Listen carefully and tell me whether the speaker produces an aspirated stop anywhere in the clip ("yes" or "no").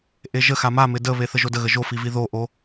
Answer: no